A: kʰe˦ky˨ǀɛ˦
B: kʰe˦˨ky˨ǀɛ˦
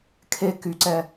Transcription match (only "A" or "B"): A